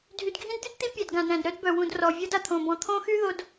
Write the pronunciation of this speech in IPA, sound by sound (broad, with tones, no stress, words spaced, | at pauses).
dʱy˨dɡʱĩ˦dd̪y˦d t̪i˦pʲæ˨d ɡã˨dɾæ̃˨dɾœ˦dbœ˨ wũ˨d rɔ˨vʲɤ˦d a˨t̪ʰõ˨ bɔ̃˨t̪ʰõ˦xy˦ ðo˨d